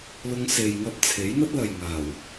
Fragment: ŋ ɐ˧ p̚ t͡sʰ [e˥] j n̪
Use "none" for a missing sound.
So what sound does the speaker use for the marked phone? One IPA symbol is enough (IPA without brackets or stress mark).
e˨˥